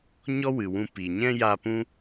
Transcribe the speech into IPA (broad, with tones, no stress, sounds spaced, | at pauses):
ɲ ɔ˦ w ɨ˨ w ũ˧ p iː˨ ɲ ɛ̃˦ j a˧ p ũ˦